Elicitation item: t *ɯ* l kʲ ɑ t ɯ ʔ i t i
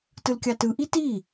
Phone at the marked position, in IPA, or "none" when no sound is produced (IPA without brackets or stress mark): ɯ